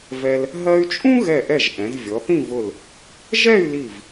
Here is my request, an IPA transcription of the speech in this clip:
vɛ˧l | ɦɜ˧y̯t͡ʃʼũ˥ ɣɛ˧˩ʔɛ˧˩ʒ ʔɛ̃˩˧zvʲɔ˩˧ θĩ˥˧vʊ˧˩l | ʒɛ˥˧y̯li˧˩v

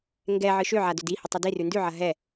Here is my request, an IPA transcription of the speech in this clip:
ŋɡɛ ʕɨʃøʕa dødihə tˤədirʉ ndʉʕɐ ɦɛ

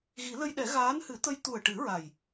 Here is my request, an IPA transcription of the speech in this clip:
ɣi˨˩˦lə˧jɗɛ˨˩˦ ɣaː˧˥nhɨ˨˩˦t̪ə˧j t̪u˨˩ə̯ʈɨ˨˩˦ ɹa˨˩j

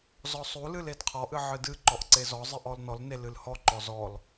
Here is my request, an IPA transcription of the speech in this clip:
zɔsˤulɨl edqʰɔʔɨ ʕɨdɨǃɔʔ ǀezɔzˤɨʔ ɔlnɔlne lɨlhɔǃɔ zɔl

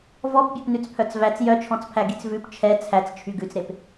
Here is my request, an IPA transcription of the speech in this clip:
vɔpbʲɛpnʉt͡s pʰœt͡svæt͡s jœt͡ʃʰɔ̃t͡spʰæ ɡit͡svʉp t͡ʃʰɛ t͡sʰæt͡st͡ʃʰy ɡʉt͡sɾep

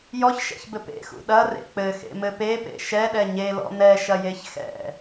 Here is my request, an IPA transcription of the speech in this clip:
jɔçʃɛ̰çbɘ pḛxṵ ɗɐrḛ k͡pɘxḛmɘ pepḛ ʃɛɗɛ ɲelɔ̰ nɛʃɐjeç xɛ̰

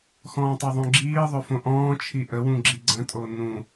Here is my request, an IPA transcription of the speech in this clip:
xɔ̃ːtˤeðˤõɡ͡ǁiː ðˤøfõʔɔ̃ː t͡ʃʰiʔə wũɡ͡ǁiɡ͡ǀə̃ tʼonũ

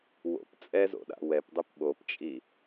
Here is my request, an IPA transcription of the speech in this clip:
wo̰p t͡sʼɛzo̰ɗa̰ wɛpdˤip ɓopt͡ʃʼi

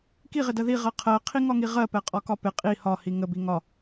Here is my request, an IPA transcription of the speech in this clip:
kiʁɪdɜ ðiʁɜ qʰɜqʰiŋɒŋi ʁɜpɛqʼɒkɒ pɪ qʼi hɒhi ŋəbi ŋɒ

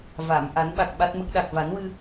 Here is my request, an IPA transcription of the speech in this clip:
va˨˩˨m ʔa˨˩˦nɓa˨˩k̚ ɓa˦˥t̚mə˦˥k̚ ɗa˨˩k̚va˨˩˦nwɨ˧

